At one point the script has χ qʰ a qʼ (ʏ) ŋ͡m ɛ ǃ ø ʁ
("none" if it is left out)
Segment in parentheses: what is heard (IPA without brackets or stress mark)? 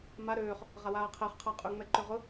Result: ʏ